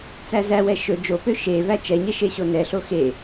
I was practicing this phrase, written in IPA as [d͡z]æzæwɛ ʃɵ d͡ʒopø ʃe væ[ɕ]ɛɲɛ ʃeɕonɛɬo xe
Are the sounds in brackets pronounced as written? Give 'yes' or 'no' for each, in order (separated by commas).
no, no